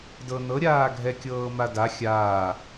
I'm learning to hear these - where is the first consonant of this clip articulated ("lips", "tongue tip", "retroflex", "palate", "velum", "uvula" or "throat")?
tongue tip